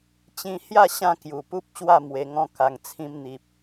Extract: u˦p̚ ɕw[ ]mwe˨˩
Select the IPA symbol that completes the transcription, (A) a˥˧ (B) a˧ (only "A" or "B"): A